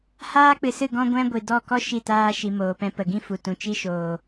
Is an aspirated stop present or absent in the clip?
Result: absent